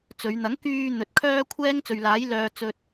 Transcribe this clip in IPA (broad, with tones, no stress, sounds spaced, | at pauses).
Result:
t͡s ɵ˨˧ ɥ n̪ ɐ˨˥ ŋ k yː˨ n̪ ɵ˨ t̚ kʰ œː˥ kʷʰ ɛː˥ ŋ t͡s ɵ˨ ɥ l aː˨˥ j l œː˧ t͡s ɵ˧ t̚